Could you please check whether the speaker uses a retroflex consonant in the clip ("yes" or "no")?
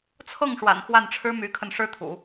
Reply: yes